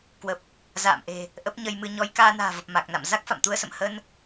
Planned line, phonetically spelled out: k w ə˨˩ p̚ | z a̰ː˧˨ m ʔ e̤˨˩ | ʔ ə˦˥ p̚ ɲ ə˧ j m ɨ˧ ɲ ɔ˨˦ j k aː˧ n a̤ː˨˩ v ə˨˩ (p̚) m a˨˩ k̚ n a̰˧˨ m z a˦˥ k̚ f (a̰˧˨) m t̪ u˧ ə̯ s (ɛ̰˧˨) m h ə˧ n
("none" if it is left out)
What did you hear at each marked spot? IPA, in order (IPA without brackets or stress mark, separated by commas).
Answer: p̚, a̰˧˨, ə̰˧˨